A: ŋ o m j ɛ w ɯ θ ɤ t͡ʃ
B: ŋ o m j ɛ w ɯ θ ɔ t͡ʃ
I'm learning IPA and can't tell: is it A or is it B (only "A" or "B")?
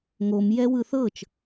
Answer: A